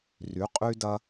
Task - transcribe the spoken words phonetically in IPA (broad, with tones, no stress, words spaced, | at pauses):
ry˨˥qʼy˦dɐ˦